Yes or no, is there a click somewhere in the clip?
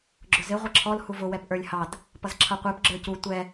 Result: yes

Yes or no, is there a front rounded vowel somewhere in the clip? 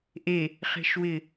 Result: no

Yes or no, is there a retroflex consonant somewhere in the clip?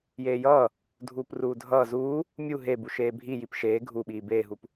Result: no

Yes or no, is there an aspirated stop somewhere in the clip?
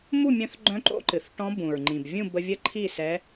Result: yes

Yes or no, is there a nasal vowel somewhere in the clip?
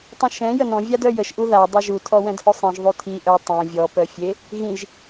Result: yes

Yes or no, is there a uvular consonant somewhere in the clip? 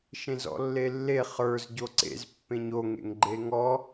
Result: yes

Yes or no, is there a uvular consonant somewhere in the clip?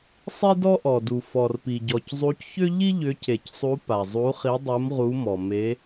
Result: yes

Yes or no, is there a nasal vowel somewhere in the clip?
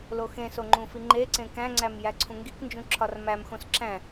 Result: yes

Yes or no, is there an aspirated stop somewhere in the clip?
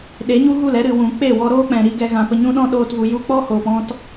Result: no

